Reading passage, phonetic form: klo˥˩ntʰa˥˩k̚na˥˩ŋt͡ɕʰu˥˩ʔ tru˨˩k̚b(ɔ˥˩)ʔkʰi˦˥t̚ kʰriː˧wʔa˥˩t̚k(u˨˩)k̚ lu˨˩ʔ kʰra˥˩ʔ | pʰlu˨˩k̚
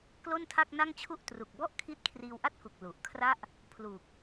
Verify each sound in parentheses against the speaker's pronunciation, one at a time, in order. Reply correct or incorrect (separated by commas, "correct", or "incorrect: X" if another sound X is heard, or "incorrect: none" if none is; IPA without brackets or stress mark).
correct, correct